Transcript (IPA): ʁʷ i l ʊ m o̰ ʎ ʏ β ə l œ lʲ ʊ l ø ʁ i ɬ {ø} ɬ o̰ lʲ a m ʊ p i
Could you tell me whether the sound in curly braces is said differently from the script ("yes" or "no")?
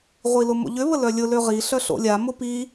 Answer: yes